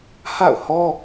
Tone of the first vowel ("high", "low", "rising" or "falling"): falling